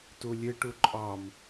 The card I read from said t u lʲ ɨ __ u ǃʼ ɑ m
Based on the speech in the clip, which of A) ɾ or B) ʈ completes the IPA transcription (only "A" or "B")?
B